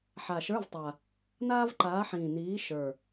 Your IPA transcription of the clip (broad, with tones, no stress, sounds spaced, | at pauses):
ħ a˨˩ ʃ ə˞˧˥˧ v tˤ aː˨˩ | n aː˥ v ǃ aː˨˥ ħ ĩː˨˩ n iː˨˥ ʃ ə˞˨˩